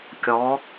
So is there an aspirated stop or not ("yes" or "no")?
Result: no